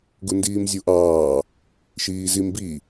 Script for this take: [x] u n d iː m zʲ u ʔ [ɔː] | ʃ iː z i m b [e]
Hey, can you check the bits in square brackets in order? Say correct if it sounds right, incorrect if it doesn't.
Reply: incorrect: ɡ, incorrect: ɑː, incorrect: i

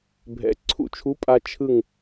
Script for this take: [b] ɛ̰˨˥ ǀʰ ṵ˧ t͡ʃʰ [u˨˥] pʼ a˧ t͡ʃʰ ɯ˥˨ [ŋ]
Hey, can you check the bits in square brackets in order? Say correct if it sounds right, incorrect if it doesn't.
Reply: incorrect: bʱ, correct, correct

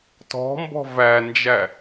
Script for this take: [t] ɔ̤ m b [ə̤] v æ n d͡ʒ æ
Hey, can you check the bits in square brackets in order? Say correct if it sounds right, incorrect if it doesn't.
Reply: correct, incorrect: ɔ̤

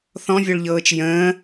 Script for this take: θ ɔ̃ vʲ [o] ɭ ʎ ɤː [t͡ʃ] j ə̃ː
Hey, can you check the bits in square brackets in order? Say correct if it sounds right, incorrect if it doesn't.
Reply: correct, correct

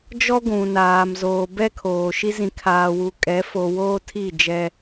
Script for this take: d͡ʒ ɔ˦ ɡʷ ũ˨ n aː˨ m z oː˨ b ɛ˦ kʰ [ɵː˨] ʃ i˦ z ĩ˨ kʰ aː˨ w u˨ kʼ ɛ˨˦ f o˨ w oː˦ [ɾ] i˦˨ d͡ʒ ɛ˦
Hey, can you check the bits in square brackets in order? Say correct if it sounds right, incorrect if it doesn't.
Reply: incorrect: oː˨, incorrect: tʰ

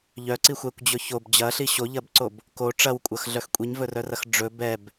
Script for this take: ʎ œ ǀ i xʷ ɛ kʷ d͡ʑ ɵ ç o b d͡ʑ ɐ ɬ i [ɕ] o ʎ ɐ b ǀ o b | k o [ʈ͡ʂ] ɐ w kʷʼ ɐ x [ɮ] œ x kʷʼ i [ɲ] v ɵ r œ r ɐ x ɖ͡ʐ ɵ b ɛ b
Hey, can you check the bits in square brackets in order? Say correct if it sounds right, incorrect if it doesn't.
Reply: correct, correct, correct, correct

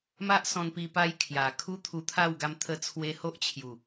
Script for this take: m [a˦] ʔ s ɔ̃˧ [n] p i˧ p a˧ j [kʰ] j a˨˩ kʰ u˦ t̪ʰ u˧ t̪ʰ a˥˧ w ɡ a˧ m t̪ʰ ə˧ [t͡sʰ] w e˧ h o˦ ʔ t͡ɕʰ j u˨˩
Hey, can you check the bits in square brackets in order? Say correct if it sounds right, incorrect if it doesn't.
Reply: correct, correct, correct, correct

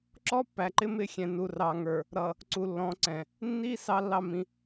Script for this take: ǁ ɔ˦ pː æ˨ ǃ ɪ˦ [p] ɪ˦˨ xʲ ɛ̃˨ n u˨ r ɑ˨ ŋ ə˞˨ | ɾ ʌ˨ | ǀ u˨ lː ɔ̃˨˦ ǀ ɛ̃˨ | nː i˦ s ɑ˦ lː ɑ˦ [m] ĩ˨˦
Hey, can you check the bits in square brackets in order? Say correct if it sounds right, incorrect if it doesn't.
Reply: incorrect: m, correct

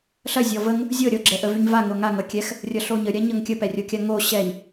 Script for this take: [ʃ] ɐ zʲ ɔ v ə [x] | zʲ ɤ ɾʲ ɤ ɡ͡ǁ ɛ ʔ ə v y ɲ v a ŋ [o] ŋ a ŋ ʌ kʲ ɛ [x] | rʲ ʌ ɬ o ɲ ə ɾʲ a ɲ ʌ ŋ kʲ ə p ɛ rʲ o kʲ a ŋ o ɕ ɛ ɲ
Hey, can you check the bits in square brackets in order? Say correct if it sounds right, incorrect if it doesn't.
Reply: incorrect: ɬ, incorrect: ŋ, correct, correct

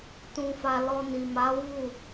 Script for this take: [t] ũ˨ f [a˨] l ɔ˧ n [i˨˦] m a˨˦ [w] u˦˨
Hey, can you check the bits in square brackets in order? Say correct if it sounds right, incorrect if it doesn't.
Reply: correct, correct, incorrect: i˨, correct

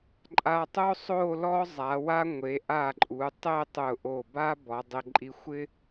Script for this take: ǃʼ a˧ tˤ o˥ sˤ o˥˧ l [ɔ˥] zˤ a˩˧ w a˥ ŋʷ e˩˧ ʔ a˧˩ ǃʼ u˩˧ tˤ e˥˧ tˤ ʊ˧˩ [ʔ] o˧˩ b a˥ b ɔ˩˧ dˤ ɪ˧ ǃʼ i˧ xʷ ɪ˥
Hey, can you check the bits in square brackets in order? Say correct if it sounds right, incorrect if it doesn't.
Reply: correct, correct

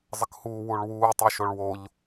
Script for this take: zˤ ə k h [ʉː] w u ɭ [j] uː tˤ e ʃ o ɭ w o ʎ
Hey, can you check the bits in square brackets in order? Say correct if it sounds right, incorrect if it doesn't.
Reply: incorrect: uː, incorrect: w

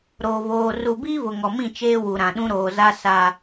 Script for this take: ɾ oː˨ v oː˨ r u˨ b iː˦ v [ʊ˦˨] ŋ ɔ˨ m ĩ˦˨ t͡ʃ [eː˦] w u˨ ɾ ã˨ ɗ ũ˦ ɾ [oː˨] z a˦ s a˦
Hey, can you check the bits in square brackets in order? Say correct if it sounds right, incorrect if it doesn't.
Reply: incorrect: ʊ˨, correct, correct

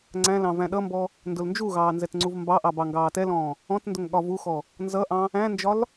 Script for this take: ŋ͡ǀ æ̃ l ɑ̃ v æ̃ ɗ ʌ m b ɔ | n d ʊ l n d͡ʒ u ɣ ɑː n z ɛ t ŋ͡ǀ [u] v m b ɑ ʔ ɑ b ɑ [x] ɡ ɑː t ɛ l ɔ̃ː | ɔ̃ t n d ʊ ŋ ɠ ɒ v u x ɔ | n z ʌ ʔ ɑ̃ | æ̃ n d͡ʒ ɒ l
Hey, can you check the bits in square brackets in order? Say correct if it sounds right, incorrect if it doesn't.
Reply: correct, incorrect: ŋ

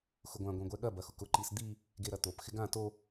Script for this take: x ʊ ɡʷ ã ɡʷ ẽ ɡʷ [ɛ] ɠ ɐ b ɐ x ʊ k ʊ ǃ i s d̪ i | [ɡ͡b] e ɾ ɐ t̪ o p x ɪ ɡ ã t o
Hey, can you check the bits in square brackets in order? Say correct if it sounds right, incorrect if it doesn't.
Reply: correct, incorrect: ɡ

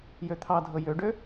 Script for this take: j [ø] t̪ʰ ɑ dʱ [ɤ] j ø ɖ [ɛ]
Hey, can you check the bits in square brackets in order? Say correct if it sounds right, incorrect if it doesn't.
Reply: correct, correct, incorrect: ø

